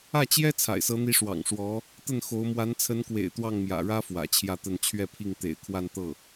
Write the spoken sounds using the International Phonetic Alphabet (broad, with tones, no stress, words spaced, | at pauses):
ä˥˩t͡ɕjɛ˥ t͡sʰa̰˨˩ɪ̯sɤ˧˥n̪i˧˥ ʂwɑ̰˨˩ŋʂwɔ˧˥ | t̪ə˥˩nxo˧˥ʊ̯ mwa˧˥nt͡sʰə˧˥nkwḛ˨˩ɪ̯ t̪wɑ˥˩ŋmjä̰˨˩ɻä˥ fwä̰˨˩t͡ɕʰjä˥˧t̪ə˥˧n t͡ɕʰɥɛ˥˧pʰi˥˩ŋ t̪ḛ˨˩ɪ̯kʰwa˥˧n t̪ɤ˥˩